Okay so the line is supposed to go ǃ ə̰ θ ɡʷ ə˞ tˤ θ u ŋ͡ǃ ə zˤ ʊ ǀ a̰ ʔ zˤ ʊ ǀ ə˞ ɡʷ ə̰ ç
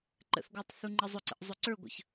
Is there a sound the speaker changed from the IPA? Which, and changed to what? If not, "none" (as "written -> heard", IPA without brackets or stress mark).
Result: a̰ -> ə̰